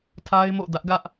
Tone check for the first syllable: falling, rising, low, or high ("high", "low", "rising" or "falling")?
high